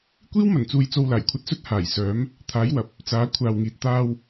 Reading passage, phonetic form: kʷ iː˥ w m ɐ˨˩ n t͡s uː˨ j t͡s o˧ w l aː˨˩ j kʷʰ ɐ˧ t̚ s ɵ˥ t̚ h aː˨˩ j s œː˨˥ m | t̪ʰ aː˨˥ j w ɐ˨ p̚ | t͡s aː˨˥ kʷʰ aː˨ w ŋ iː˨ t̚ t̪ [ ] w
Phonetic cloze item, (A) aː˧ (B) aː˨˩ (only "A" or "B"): A